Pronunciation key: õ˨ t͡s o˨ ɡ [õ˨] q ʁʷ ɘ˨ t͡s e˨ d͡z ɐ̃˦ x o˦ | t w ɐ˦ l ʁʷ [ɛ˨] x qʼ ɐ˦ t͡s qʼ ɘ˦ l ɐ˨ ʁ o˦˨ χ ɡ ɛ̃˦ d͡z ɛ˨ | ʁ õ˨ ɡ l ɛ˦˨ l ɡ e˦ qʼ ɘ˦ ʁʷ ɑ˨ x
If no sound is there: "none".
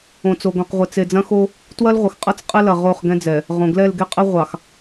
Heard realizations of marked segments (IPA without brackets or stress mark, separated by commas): õ˨, ɘ˨